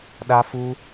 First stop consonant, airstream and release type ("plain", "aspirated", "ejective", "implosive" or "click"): implosive